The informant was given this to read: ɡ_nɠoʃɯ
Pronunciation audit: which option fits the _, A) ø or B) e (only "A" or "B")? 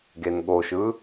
B